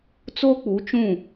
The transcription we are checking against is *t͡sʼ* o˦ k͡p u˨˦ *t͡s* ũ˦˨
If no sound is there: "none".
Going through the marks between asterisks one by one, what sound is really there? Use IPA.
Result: t͡s, t͡ʃ

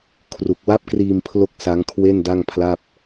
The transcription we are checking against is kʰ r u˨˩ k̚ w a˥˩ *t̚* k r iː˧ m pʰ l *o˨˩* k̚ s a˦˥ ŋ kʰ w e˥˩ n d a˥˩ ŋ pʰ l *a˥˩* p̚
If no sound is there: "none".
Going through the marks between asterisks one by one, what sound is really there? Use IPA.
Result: p̚, o˥˩, a˥˩

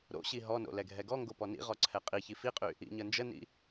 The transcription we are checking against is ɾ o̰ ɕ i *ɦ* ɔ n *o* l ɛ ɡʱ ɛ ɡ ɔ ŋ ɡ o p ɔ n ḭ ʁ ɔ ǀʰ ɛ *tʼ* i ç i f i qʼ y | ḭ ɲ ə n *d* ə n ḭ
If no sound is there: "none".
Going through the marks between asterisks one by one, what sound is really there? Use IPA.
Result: ɦ, o̰, qʼ, d͡ʒ

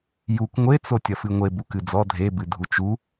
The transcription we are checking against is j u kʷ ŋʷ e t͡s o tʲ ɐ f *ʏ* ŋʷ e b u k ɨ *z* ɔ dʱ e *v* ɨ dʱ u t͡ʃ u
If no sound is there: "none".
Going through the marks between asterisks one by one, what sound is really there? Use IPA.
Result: ɨ, d͡z, b

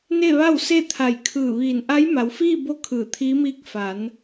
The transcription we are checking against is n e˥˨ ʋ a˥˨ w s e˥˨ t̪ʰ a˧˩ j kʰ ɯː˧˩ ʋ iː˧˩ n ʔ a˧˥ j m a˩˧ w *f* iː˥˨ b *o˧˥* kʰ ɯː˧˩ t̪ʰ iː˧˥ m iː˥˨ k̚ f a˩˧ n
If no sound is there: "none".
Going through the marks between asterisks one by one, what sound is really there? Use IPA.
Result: f, o˧˥

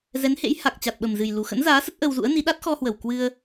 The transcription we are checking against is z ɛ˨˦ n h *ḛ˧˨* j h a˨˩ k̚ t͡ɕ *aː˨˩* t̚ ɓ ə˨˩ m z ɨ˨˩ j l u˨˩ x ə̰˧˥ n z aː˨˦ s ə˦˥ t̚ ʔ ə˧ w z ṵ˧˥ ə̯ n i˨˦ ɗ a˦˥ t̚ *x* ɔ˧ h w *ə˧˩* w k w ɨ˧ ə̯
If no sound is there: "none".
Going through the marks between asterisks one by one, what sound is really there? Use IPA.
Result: ḛ˧˥, a˨˩, x, ə˧˩

